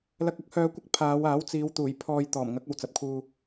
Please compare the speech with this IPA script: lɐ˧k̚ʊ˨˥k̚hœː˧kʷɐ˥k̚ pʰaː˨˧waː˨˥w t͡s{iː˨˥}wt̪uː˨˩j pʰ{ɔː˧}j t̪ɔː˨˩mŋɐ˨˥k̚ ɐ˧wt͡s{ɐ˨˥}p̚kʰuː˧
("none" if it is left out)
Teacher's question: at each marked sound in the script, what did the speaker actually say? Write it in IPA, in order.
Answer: iː˨˧, ɔː˧, ɐ˨˥

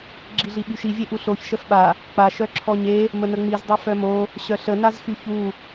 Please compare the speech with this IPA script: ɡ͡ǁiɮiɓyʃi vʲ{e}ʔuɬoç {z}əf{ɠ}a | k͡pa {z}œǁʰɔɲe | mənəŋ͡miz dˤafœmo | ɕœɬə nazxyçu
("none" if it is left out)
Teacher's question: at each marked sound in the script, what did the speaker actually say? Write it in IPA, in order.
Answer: e, ʃ, ɓ, ʃ

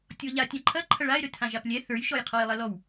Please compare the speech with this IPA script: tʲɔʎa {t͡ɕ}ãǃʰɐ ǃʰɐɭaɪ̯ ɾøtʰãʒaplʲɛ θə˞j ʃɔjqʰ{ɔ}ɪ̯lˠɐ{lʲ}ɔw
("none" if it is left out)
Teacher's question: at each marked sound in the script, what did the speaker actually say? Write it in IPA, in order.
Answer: tʲ, ɔ, l

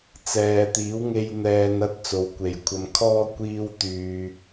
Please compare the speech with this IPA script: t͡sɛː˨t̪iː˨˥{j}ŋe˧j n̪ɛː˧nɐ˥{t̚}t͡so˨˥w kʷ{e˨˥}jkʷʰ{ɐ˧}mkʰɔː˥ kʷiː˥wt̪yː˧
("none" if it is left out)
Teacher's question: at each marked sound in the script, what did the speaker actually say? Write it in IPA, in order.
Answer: w, t̚, e˨, ɐ˧

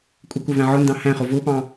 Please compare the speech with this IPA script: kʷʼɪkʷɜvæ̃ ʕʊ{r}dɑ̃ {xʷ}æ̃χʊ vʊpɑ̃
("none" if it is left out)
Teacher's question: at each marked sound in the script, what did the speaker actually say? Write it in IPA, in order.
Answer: n, h

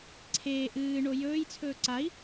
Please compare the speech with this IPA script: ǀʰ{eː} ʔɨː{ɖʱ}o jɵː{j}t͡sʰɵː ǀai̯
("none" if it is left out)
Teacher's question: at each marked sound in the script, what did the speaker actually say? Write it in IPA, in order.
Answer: eː, ɳ, j

